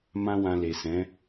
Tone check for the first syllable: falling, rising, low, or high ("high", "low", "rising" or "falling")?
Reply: high